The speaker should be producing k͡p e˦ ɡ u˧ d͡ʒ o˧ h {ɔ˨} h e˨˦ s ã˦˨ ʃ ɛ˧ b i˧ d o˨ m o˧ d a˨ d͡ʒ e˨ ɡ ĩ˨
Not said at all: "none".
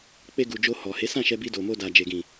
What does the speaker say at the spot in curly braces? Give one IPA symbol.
ɔ˨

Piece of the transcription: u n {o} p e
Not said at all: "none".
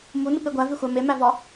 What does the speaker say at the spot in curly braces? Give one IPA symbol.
u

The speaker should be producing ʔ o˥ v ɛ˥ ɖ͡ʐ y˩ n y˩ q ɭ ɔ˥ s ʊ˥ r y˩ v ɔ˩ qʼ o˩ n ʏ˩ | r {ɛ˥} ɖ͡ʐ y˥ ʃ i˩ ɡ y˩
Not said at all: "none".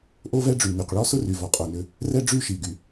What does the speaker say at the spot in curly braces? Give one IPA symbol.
ɛ˥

